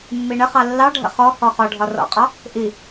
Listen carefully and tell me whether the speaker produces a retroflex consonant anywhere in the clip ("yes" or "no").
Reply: yes